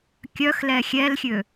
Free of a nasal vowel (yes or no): yes